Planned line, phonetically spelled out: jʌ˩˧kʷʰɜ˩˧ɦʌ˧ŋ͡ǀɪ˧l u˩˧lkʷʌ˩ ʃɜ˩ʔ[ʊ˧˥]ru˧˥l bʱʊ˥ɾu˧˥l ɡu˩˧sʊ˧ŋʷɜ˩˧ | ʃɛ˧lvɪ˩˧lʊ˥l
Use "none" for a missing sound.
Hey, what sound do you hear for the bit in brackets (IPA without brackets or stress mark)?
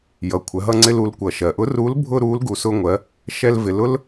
ʊ˧˥